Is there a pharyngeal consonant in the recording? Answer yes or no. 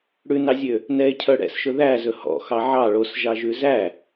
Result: yes